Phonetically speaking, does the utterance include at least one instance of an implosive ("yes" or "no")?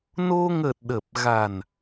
yes